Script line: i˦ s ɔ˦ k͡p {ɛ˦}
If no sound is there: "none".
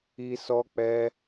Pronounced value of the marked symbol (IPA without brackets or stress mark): ɛ˦